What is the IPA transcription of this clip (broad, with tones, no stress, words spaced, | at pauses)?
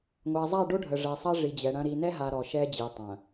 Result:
ŋʷa˨zˤa˦˨ɖo˦ ɖʱə˨ʐɛ˨sˤɐ˦ ʐi˨d͡ʑɛ˨ɽɐ̃˦ ɾi˨nɛ˦ ɦa˨ ɾɔ˨ʃɛ˦d͡ʑi˨ tˤɐ̃˨